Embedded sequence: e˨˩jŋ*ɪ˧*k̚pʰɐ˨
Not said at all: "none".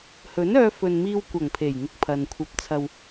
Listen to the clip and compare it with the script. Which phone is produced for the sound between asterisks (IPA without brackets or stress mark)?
ɪ˧